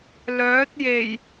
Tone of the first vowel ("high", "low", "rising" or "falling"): rising